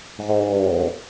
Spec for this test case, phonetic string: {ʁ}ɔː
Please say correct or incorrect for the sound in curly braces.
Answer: correct